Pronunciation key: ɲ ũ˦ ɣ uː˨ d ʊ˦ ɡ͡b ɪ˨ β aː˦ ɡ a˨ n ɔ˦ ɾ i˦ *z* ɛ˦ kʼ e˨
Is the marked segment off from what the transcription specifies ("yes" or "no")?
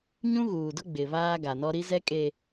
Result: no